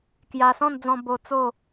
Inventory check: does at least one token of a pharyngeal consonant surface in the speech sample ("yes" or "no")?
no